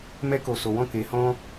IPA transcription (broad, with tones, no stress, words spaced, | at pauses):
mɛ˧ko˨so˨wɔ̃˧ ke˨˦hɔ̃˦